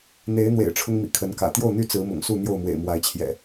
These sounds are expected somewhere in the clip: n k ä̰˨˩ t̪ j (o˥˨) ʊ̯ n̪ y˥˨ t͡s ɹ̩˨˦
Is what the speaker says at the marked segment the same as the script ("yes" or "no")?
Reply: yes